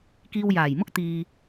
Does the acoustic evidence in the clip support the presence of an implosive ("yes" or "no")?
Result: no